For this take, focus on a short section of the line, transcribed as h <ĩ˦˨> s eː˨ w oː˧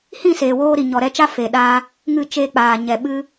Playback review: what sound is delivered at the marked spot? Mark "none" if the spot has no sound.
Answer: ĩ˦˨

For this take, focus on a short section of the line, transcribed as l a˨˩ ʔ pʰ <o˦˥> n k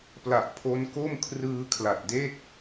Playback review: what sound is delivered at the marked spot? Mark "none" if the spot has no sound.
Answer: o˦˥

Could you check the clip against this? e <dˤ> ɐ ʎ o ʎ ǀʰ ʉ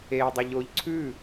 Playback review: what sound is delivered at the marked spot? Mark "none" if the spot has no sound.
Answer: dˤ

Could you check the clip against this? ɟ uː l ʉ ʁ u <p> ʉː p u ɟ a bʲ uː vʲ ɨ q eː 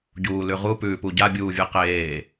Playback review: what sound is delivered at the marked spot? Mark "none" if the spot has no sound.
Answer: p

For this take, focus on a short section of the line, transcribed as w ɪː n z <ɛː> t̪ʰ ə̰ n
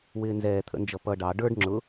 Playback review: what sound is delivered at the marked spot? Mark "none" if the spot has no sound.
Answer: ɛː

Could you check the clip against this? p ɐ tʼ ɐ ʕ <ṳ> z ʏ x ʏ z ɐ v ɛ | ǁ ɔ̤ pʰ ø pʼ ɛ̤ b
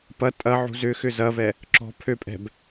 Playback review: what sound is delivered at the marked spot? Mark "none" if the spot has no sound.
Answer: ṳ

